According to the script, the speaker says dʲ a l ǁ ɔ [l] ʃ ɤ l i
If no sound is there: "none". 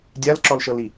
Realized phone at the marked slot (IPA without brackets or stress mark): l